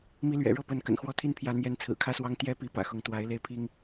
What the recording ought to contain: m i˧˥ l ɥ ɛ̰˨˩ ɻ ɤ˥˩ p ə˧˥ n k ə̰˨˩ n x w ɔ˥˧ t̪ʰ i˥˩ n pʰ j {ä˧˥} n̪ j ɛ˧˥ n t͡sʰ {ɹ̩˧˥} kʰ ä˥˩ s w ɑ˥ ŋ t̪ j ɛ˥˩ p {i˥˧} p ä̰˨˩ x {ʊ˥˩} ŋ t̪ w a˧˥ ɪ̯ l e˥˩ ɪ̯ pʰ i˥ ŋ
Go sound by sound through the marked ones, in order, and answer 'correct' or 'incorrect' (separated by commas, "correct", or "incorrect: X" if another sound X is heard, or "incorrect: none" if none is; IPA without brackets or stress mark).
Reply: correct, incorrect: ɹ̩˨˩, incorrect: i˧˥, incorrect: ʊ˧˥